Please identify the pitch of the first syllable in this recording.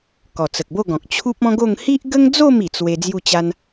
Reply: low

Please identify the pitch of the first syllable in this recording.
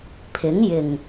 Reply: rising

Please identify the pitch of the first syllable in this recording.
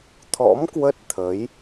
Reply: rising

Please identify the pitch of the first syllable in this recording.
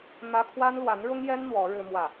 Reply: high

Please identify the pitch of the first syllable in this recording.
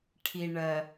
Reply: low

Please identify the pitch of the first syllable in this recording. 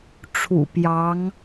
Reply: low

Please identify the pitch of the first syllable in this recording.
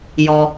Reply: low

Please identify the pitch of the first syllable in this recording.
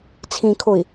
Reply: low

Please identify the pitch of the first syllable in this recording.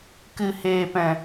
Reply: low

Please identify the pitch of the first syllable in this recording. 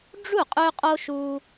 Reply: falling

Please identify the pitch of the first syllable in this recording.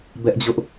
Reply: high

